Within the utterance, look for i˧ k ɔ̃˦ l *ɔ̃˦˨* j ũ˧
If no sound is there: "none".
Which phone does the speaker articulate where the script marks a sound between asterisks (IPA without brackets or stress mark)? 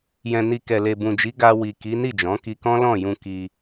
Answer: ɔ̃˦˨